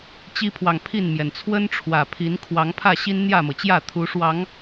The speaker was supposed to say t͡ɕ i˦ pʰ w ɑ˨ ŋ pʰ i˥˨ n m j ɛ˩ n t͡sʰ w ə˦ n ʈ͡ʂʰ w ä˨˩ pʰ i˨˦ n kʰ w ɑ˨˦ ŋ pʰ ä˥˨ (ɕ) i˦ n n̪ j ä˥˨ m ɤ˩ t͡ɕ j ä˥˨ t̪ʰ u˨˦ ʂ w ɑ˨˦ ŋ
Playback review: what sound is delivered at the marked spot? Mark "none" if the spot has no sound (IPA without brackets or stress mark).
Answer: ɕ